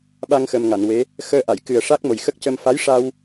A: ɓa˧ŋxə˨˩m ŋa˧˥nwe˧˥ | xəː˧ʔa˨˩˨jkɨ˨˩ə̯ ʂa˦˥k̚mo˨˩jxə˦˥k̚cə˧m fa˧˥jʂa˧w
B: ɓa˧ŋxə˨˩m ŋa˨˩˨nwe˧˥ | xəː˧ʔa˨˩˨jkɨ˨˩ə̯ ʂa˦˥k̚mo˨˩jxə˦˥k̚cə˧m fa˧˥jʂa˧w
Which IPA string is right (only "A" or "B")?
B